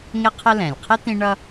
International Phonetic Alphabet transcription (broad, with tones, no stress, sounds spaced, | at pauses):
ŋ ɪ˦ qʰ ə˦ l ɛ̃˩ lʲ qʰ ɪ˥ t̪ ĩ˦ ɳ ʌ˦